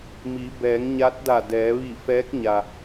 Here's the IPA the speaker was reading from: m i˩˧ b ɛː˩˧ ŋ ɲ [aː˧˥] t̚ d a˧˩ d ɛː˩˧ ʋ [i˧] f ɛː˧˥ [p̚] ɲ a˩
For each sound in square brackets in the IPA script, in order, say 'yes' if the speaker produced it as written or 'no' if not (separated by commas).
no, no, no